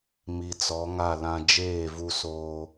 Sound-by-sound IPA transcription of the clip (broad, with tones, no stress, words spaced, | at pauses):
mi˨t͡sɔ˨˦ŋa˦˨lã˦ d͡ʒeː˦˨vu˦soː˦